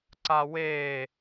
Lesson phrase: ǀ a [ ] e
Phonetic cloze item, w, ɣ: w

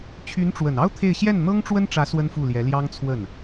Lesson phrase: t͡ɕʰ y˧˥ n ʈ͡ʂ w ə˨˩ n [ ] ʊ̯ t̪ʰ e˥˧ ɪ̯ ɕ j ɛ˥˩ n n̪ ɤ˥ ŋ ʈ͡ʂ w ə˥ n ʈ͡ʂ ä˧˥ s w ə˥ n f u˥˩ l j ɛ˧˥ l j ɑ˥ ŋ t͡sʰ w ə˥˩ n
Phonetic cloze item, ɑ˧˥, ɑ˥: ɑ˥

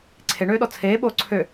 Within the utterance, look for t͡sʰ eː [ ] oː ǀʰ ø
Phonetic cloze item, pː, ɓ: ɓ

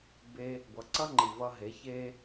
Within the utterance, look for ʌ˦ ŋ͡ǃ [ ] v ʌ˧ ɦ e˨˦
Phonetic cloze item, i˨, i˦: i˨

